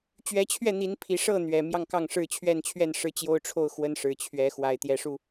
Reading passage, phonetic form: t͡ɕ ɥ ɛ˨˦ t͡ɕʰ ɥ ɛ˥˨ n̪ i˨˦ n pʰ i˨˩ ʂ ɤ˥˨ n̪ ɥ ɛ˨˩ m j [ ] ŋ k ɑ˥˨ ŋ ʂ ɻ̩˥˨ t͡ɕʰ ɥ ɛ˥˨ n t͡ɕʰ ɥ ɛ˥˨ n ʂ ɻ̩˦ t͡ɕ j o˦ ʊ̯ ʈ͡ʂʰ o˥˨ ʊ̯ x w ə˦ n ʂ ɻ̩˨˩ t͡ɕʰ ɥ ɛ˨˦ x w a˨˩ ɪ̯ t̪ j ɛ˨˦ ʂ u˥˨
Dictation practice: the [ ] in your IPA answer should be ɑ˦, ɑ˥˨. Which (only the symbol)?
ɑ˥˨